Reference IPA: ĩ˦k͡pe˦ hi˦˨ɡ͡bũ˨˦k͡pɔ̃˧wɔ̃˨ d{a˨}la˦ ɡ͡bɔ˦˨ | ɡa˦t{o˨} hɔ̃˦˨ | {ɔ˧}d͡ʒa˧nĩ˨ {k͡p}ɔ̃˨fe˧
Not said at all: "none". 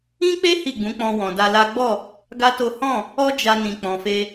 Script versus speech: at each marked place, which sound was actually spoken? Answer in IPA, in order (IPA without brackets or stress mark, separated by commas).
a˧, o˦, ɔ˦, k͡p